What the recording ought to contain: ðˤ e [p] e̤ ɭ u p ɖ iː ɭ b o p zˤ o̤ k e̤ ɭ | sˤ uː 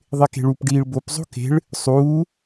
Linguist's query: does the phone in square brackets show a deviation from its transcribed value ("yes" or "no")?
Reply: yes